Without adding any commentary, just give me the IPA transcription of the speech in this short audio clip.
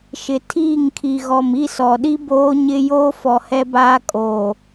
ʃ ɪ˨ tʰ iː˦˨ ŋ kʰ i˨ ɣ ɔ˨ m i˦˨ s ɔ˨ ɗ i˦ b oː˦ ɲ ɪ˦ j oː˦ f ɔ˨ h ɛ˦ b aː˦ kʼ oː˨

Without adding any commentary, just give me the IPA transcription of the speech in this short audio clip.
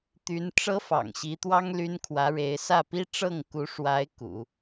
t̪ y˧˥ n ʈ͡ʂ ɤ˥ f ɑ̰˨˩ ŋ ɕ i˧˥ t̪ w ɑ˥ ŋ l y˥ n kʰ w ä˧˥ ɻ e˧˥ ɪ̯ s ä˥˩ p i˥ ʈ͡ʂ ɤ˥˩ ŋ k u˧˥ ʂ w a˧˥ ɪ̯ k ṵ˨˩˦

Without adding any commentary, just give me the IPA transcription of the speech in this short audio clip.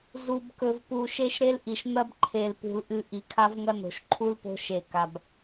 z u˨ b k ɵ˨ v p u˨ ʃ e˦ ʃ ɾ e˦ l ʔ i˨ ʃ n̪ ɐ˦ b ǃʰ e˨ l p ṳ˨ l ʔ ɨ˨ ʔ i˨ kʰ a˦ v ŋ ɐ˦ n o̤˨ ʃ ǃʰ u˦ l p o̤˦ ʃ e˨ k a˨ b

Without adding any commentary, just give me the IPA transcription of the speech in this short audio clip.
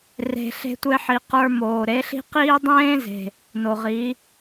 r e̤˧ ɬ e̤˦ tʷ e˦ ħ i˨ q ə˞˧ m oː˨ ɾ e˨˦ ɬ i̤˦ q iː˦ dˤ ẽː˦ z e̤˨ | n o˨ ʁ i˨˦

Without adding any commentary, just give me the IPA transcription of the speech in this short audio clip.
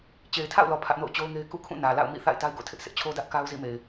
t͡ɕ e˨ ɪ̯ tʰ a̰˦˨ ʊ̯ l ɔ˨ pʰ ä˦ ʔ n o̰˦˨ ʊ̯ t͡ɕ o˦ ʊ̯ ŋ e˦ ɪ̯ k ṵ˦˨ kʰ ũ˦˨ n ä˨ l a̰˦˨ ʊ̯ m ḭ˦˨ θ a̰˦˨ ɪ̯ t a˦ ɪ̯ ɡ o̰˦˨ tʰ ɪ˦ ʔ sʰ ɪ˦ ʔ t͡ɕʰ o˦ d ä˦ ʔ k a˦ ʊ̯ z ḭ˦˨ m e˨ ɪ̯

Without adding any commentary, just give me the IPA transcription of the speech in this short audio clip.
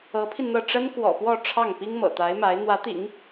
ɤ˧˥ pʰ i˧ n n̪ ɤ˥˩ ʈ͡ʂ ə˥ n k w ɔ̰˨˩ p w ɔ˥˧ ʈ͡ʂʰ ɑ˥˩ ŋ p i˥ ŋ m ɤ̰˨˩ t̪ a˧˥ ɪ̯ m a˧˥ ɪ̯ n̪ w ä˧˥ t̪ ḭ˨˩˦ ŋ

